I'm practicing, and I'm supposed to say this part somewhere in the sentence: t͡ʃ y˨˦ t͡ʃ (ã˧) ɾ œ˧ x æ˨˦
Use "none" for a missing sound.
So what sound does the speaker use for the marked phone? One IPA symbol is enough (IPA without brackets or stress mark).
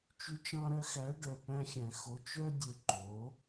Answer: ɑ̃˧